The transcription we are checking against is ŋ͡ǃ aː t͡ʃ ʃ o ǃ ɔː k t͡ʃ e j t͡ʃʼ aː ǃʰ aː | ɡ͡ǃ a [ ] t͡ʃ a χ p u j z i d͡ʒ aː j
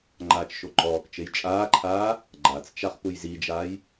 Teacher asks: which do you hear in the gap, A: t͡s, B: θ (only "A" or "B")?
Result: A